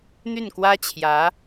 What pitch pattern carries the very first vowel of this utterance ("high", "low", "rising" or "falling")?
falling